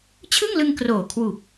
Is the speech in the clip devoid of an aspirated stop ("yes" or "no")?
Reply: no